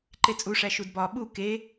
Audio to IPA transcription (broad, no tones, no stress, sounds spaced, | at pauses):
ǃ e t͡sʼ u ʂ æ ʃ u d b ɒ ɓ u k e